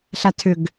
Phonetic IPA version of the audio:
ɬ a tʰ ʏ ɡ

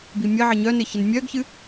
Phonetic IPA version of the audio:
b i mʲ ə ʕ ə ɲ œ n ɪ ç ɪ n mʲ œ ɡ ç ɨ

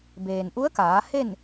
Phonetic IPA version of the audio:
b eː˩ n ʔ u˧˥ ə̯ k aː˩˧ h e˥˨ n

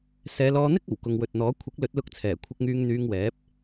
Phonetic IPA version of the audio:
s ɛː˨˧ l ɔː˧ n̪ ɪ˥ k̚ ɐ˨˩ w k ʊ˨ ŋ w ɵ˨ t̚ n̪ ɔː˨˥ kʷʰ ɪ˨˥ k̚ l ɵ˨˥ t̚ l ʊ˧ k̚ t͡sʰ ɛː˨˩ kʷʰ ɪ˧ k̚ ŋ yː˧ ŋ n̪ yː˧ ŋ w ɛː˨˥ p̚

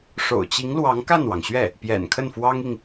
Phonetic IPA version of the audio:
ʂ o̰˨˩ ʊ̯ t͡ɕ i˧˥ ŋ l w ɑ˧˥ ŋ k a˥˩ n w ɑ˩ ŋ ɕ ɥ ɛ˥˩ | p j ɛ̰˨˩ n kʰ ə˥˩ n f w ɑ˥ ŋ i˨ ŋ

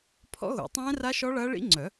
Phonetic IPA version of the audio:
pʰ ɔ̰˦˥ ɣ o̰˨˩˦ tˤ ɛ̃ː˦˥ r a˦˥ ʃ ɔ˦˥ ɭ ɐː˦˥ ɭ ḭ˦˥ ŋ͡ǀ œ˨˩˦

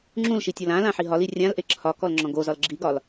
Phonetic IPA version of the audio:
ŋ͡ǁ ũ l ʃ i tʲ ɔ l ã l ã ħ i ɦ ɒ l i rʲ ã l ʔ e ǁʰ ɒ k ɔ l ŋ͡ǁ ɔ̃ ɡ o z ɒ l ɡ͡ǁ i ɡ ɒ l

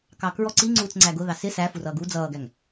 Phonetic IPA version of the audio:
k ɑ k ɹ ɔ ǀ i ŋ͡ǀ uː t͡s ŋ͡ǀ æ ɡ ʊ ð ɑ s ɪ s æ f u r ʌː ɡ u d͡z ʌː ɡ æ ŋ

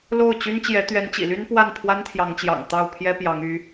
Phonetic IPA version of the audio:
l o˥˩ ʊ̯ t͡ɕ y˥ n t͡ɕ j ɛ˧˥ t̪ ɥ ɛ˧˥ n t͡ɕ ḭ˨˩ l y˥ n p w a˥˩ n pʰ w a˥ n t̪ʰ j ɑ˧˥ ŋ t͡ɕ j ɑ̰˨˩ ŋ t̪ ɑ˥˩ ʊ̯ pʰ j ɛ˥ p j ɑ˧˥ ŋ y˧˥

